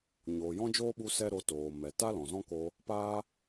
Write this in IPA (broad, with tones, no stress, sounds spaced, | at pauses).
ɲ oː˨ j ɔ̃˦ d͡ʒ oː˦ ɓ u˧ s ɛ˦ ɾ o˧ t oː˨ m ɛ˨ t a˦ l ɔ̃˨ z ɔ̃˦ k o˧ | p a˦